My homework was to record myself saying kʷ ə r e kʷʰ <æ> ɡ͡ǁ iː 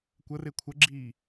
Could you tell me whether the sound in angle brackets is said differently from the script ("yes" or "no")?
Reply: yes